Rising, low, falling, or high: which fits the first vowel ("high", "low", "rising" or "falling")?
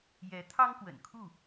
rising